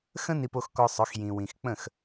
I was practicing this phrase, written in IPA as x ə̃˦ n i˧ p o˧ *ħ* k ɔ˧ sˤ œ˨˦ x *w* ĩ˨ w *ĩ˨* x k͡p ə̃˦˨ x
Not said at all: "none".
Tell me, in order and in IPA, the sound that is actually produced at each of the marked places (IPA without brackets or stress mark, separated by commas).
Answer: x, j, ĩ˨